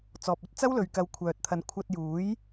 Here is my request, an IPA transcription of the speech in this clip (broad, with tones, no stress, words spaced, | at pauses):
t͡sɔː˨p̚ɐ˧t̚t͡sɐ˥w lɵ˨ɥkɐ˨˧w kʷʰœː˨t̚t̪ʰɐ˨˥n kʷʰɐ˧t̚ juː˨˥j